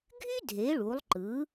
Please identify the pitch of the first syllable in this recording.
high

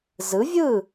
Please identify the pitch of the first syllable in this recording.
rising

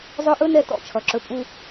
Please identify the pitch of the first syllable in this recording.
high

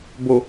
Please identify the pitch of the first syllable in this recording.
low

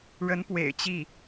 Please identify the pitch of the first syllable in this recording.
rising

